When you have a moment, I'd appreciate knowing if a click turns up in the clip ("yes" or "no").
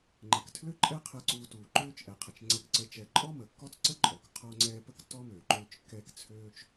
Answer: yes